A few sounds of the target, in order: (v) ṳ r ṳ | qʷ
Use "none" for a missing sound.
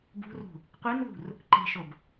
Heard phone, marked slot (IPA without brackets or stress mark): b